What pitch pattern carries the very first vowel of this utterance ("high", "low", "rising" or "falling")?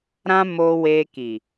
high